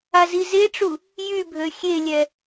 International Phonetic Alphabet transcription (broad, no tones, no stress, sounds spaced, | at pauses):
a z i z e ʈ͡ʂ u | j y bʱ ø xʲ e lʲ ɛ